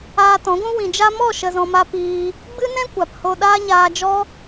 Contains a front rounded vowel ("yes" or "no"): no